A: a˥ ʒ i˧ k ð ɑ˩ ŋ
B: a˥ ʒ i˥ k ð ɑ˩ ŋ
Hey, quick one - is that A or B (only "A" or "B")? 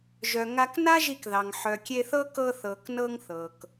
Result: A